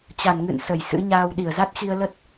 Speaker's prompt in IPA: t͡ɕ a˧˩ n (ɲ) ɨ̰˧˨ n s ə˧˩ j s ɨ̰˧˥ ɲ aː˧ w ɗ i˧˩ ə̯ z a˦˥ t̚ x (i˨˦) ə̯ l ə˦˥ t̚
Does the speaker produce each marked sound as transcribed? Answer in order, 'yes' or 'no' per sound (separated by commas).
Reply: no, no